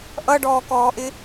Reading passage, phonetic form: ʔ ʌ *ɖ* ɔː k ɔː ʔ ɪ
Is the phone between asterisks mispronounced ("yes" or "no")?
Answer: no